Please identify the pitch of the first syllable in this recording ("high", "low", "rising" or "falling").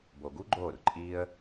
low